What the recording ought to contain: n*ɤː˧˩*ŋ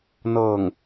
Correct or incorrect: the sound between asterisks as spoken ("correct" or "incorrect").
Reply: correct